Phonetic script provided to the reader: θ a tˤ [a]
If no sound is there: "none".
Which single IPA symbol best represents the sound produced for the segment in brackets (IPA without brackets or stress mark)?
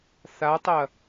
ɐ